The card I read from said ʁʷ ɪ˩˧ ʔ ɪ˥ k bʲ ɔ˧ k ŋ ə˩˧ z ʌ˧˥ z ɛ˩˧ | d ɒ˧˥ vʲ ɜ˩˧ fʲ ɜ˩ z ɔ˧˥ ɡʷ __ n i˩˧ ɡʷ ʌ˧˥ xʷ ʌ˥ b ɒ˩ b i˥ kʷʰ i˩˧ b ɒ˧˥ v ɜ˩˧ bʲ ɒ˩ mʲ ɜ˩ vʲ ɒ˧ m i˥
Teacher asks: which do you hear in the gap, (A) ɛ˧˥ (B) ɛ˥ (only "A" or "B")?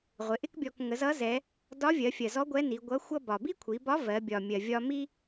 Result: A